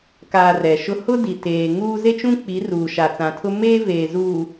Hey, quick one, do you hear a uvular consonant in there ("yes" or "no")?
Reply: no